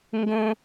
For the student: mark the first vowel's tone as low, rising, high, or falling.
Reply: high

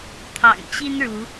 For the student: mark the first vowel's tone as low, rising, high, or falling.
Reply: low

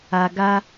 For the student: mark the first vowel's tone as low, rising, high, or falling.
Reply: low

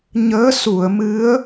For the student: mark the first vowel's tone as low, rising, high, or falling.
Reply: rising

